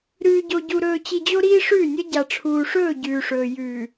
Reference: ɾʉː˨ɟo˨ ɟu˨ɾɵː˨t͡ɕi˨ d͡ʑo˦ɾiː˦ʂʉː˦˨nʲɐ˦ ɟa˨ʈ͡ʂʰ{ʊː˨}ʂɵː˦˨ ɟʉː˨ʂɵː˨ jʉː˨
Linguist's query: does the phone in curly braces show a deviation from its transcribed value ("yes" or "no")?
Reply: yes